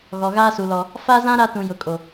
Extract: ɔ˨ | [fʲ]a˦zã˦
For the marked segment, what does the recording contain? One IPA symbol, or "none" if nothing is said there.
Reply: f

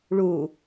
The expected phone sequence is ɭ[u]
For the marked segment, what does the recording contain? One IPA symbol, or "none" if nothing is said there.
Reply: u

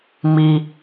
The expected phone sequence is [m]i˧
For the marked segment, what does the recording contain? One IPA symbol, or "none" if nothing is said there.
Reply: m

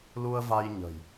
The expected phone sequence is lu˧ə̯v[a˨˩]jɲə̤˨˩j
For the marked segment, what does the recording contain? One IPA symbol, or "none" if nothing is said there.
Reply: a˧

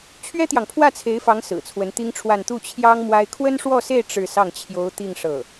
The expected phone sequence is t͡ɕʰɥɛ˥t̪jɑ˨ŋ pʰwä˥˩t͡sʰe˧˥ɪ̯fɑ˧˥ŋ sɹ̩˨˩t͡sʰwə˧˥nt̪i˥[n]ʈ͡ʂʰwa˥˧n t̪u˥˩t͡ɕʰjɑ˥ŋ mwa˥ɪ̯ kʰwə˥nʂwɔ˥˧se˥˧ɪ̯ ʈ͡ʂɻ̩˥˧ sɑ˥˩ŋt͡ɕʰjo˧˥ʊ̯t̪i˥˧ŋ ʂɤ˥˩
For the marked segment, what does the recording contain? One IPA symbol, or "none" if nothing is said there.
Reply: ŋ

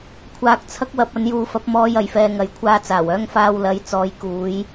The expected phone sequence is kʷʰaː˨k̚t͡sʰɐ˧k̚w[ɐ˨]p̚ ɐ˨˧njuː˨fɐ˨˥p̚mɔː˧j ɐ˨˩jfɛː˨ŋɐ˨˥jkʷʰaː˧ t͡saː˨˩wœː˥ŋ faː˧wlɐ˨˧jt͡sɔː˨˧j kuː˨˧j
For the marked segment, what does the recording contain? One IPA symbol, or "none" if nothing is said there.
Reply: ɐ˨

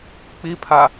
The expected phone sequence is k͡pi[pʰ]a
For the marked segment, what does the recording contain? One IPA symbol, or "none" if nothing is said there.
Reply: pʰ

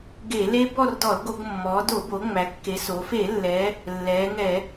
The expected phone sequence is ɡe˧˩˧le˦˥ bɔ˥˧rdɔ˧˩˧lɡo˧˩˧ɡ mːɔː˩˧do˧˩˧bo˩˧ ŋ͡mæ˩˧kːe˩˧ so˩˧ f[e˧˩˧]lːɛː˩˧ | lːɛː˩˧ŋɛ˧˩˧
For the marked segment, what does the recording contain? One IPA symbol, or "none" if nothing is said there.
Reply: e˧˩˧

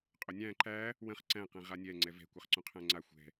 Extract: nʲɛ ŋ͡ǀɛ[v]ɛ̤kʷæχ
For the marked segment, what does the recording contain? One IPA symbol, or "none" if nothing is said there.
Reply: v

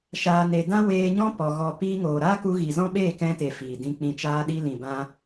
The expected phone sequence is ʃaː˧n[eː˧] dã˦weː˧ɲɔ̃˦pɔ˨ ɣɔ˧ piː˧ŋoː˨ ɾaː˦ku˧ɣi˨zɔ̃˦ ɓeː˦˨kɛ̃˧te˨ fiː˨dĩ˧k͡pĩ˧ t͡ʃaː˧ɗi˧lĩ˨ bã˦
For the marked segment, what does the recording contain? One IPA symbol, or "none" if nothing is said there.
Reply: e˧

